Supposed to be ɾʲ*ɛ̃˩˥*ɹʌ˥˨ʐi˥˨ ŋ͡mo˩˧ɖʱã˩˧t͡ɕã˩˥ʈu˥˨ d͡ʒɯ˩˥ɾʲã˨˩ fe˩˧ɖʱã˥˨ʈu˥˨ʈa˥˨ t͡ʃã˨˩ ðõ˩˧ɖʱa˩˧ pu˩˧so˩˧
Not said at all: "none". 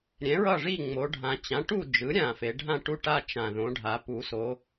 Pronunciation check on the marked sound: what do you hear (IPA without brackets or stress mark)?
ɛ̃˩˥